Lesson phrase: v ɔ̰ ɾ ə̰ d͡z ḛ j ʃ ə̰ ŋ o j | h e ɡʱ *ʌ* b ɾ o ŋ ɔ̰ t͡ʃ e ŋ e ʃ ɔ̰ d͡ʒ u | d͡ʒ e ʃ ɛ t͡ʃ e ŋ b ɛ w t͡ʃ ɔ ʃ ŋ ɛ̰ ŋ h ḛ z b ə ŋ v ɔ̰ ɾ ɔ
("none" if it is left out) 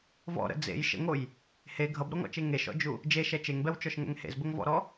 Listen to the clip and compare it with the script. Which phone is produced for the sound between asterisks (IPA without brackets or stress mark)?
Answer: ʌ